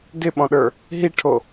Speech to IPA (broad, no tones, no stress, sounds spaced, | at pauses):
d ɪ ɓ ɔ̃ ɗ ə˞ | ɦ i ʈʰ o